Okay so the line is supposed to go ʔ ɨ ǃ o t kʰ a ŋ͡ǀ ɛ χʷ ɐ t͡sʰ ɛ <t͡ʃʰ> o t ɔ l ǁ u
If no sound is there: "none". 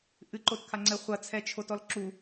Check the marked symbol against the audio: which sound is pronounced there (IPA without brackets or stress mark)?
t͡ʃʰ